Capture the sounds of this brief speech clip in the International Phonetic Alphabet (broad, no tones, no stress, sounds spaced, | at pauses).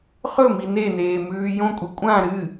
χ ɵ m i n e n eː m ʉː j õ kʷʼ i kʷʼ ã ɾ ɨ